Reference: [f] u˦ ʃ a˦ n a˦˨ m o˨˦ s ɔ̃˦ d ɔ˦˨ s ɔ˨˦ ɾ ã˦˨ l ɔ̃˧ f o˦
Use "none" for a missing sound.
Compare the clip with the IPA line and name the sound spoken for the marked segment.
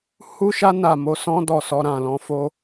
h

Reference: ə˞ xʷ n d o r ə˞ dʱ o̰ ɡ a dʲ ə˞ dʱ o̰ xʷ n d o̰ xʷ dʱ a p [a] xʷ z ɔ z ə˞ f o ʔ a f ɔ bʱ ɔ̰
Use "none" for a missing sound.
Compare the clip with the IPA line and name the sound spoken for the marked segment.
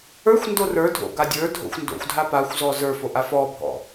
a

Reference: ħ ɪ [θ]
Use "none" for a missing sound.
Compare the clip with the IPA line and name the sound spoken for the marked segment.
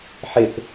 θ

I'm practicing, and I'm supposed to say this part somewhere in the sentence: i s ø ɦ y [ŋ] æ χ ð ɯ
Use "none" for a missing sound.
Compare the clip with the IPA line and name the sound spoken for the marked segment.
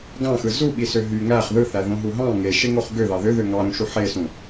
ŋ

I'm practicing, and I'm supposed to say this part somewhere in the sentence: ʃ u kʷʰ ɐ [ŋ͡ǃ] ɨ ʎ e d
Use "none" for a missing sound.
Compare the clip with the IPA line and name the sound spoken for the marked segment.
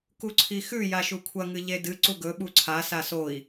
ŋ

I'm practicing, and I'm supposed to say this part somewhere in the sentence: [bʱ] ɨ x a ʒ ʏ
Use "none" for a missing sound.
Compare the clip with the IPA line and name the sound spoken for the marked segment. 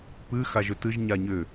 p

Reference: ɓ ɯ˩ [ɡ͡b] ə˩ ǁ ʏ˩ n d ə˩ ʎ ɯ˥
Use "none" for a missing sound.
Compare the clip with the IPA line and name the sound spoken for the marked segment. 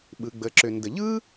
ɡ͡b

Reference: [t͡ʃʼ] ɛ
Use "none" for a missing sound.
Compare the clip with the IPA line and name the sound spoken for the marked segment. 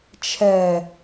t͡ʃʰ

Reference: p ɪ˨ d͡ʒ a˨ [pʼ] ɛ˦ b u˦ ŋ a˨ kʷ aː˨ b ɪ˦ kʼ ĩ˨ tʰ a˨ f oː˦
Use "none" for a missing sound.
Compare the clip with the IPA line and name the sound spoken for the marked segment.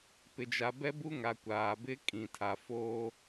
b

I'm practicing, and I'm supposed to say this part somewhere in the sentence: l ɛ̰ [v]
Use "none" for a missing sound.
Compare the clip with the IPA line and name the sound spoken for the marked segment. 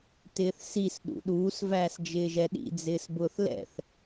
θ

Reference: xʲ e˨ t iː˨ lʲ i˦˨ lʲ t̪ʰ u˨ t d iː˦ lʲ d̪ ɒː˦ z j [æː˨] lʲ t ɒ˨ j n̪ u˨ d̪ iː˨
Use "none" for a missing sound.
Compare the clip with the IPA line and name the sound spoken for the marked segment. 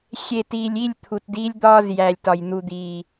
æː˨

